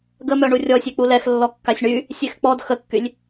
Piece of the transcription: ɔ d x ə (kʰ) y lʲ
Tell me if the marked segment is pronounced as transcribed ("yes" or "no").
no